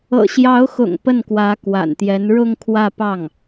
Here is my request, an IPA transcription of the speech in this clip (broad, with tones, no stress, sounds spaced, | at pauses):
ɤ̰˨˩ ɕ j ɑ˧˥ ʊ̯ x ʊ̰˨˩ ŋ p ə˥˩ n k w ä˧˥ k w a̰˨˩ n t̪ j ɛ˧˥ n ɻ ʊ˥˧ ŋ kʰ w ä˥˧ p ɑ˥˩ ŋ